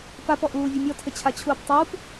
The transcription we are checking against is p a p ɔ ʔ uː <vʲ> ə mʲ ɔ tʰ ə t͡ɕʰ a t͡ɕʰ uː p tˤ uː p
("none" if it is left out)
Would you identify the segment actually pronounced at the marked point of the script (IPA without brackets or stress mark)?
vʲ